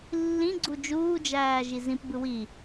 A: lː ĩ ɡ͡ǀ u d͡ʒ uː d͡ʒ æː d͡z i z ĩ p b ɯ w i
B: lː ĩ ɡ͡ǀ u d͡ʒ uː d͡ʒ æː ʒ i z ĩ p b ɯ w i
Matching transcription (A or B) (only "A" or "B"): B